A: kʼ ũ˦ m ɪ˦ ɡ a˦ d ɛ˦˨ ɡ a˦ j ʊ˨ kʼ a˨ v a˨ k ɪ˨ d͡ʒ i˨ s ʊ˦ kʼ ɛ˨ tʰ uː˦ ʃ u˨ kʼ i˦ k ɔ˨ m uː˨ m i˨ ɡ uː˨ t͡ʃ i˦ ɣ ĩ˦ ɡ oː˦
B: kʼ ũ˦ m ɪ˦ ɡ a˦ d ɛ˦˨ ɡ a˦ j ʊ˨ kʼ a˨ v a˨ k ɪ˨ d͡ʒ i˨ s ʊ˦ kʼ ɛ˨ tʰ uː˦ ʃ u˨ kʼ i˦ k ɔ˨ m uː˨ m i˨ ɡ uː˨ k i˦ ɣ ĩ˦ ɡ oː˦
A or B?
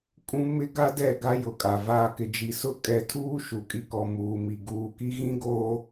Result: B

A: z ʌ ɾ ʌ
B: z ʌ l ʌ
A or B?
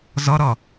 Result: A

